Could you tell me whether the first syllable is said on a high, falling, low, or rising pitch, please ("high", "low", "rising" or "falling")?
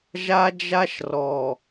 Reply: high